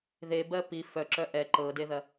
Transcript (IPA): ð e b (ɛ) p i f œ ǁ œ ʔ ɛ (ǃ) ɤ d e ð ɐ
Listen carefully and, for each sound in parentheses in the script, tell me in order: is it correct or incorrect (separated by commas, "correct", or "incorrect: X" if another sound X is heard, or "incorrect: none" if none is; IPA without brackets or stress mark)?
incorrect: ɜ, correct